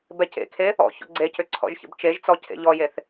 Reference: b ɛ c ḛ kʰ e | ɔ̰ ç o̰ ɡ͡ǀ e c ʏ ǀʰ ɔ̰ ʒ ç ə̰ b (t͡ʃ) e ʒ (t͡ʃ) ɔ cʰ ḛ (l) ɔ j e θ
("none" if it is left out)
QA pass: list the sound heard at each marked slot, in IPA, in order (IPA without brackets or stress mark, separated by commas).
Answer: t͡ʃ, t͡s, ʎ